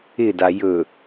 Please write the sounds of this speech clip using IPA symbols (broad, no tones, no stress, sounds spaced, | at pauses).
ɪ d a j ɵ